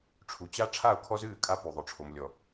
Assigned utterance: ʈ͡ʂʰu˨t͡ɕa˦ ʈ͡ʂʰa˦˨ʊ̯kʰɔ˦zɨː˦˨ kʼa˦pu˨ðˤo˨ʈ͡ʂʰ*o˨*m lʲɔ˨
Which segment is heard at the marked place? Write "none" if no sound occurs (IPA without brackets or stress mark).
o˨